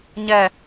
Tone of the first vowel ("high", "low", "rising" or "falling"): falling